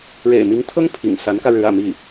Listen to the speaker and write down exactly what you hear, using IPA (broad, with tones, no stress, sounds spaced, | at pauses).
ɻ ḛ˨˩ ɪ̯ m i˧˥ ŋ t̪ʰ ɤ˥ ŋ pʰ ḭ˨˩ ŋ s a˧˥ n k ä˧ ɻ ɻ̩˧˥ ä̰˨˩ m i˥˩